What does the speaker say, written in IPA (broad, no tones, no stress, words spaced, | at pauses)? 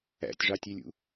æ̰tʲʐɑtʲelʲṵ